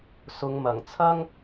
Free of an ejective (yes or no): yes